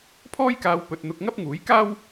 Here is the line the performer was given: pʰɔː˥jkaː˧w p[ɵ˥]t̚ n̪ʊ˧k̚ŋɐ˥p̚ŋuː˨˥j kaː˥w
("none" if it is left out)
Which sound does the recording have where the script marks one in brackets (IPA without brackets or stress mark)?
ɵ˥